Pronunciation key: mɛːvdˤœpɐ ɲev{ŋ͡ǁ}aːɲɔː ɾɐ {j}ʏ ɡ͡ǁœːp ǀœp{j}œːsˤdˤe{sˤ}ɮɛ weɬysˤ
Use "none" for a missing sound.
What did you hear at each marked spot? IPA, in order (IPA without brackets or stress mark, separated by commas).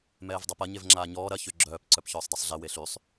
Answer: ŋ͡ǁ, ç, ç, sˤ